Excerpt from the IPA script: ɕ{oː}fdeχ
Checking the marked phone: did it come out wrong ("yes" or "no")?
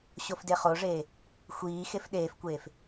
yes